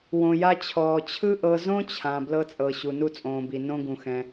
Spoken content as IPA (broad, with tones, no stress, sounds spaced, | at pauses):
w õ˩ j a˧ t͡ɕʰ ɔː˩ t͡ɕʰ ɯ˥ ʔ ɤ˧ z õ˥ t͡ɕʰ ã˩ b l ɤ˧ t͡sʼ ɤ˩ ɕ u˩ n u˧ t͡sʼ õː˩ b i˩ n õ˧ ɡ ũ˩ x ɛ̃˩